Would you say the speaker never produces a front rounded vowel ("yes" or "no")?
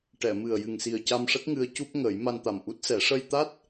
yes